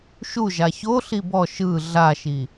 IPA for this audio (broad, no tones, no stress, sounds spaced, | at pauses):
ʃ u ʒ a ç o ɬ i b ɔ ʃ ɯ ɮ a ʃ i